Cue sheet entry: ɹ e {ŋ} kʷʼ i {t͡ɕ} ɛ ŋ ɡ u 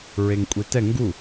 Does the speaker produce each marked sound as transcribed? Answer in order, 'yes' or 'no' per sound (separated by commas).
yes, no